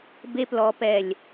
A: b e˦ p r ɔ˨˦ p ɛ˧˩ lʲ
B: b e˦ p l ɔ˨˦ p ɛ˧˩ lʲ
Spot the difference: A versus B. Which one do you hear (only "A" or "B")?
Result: B